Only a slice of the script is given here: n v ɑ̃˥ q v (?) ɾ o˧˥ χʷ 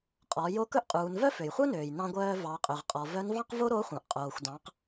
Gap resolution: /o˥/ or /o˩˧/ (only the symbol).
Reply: o˥